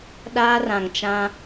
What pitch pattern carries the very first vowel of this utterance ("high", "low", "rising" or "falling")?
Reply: high